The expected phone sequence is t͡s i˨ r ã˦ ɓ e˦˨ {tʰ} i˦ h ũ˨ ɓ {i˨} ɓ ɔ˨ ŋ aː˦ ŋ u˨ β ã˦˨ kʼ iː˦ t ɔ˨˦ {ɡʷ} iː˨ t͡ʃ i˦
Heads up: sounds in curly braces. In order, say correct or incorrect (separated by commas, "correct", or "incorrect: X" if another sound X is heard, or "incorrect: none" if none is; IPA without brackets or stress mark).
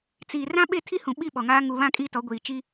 correct, incorrect: i˦˨, correct